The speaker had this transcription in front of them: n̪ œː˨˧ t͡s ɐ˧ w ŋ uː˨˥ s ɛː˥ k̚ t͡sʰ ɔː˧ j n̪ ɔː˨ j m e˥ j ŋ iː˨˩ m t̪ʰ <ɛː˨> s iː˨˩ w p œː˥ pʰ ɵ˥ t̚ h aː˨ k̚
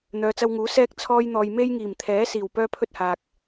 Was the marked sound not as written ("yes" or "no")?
yes